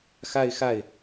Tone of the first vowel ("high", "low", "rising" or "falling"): falling